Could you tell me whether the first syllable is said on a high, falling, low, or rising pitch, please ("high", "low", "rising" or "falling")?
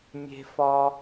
high